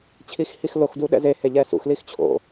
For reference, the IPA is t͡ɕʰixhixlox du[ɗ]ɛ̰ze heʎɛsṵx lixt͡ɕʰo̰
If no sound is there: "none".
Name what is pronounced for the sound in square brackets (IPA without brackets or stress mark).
ɗ